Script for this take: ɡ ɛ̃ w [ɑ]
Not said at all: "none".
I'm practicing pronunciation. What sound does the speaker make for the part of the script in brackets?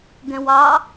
ɑ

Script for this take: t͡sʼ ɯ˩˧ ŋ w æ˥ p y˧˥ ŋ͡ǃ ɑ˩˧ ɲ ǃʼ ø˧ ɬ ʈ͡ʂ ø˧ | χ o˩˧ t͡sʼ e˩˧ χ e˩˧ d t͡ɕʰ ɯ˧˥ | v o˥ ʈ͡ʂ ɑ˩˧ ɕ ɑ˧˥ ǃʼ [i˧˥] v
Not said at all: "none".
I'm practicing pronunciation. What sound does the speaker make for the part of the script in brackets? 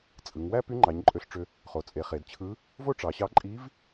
i˧˥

